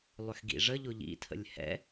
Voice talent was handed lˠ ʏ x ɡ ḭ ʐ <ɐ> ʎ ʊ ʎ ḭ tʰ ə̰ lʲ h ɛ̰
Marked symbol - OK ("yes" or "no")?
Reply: no